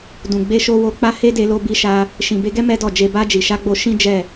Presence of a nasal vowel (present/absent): present